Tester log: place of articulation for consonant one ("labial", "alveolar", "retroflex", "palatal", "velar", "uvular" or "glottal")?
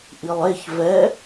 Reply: glottal